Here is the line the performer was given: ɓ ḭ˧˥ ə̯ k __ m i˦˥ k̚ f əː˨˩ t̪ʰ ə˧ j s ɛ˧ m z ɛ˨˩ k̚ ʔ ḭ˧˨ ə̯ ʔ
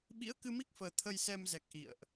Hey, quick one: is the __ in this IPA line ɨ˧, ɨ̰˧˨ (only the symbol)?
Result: ɨ˧